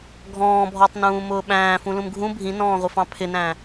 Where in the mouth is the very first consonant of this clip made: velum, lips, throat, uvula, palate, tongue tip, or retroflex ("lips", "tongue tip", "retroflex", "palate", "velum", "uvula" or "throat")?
velum